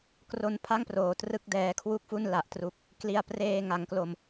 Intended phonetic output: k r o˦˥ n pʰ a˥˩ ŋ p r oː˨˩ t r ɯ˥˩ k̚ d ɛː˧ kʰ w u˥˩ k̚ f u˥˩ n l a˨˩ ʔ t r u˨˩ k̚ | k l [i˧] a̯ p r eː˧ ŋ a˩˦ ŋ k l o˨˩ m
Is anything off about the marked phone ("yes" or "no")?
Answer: no